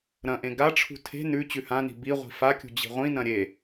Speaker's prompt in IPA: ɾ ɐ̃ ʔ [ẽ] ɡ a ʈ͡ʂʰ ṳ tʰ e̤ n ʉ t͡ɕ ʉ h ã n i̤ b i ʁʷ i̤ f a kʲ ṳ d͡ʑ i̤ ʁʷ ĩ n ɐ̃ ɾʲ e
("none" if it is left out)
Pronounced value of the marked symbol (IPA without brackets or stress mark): ẽ